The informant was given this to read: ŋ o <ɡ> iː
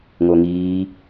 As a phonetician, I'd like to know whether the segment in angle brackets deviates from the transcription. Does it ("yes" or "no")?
yes